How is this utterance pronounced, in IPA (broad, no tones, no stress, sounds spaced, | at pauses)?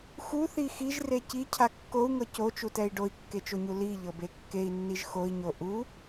x u θ i x i ʒ r e c i cʰ a kː o u̯ ŋ ɤ c o t͡ʃ u t ɛ i̯ ɖ o i̯ kː e t͡ʃ o ɲ u l i ʎ ɤ b e kː e i̯ nː i ʒ x o i̯ ɲ o ʔ u